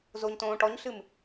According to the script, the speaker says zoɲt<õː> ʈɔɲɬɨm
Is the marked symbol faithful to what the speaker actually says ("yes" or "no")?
yes